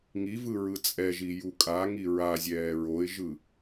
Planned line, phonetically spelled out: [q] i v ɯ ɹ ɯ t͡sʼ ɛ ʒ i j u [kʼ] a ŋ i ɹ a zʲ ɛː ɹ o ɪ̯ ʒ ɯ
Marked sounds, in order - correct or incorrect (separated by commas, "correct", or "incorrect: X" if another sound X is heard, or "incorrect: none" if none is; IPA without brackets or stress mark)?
incorrect: ŋ, correct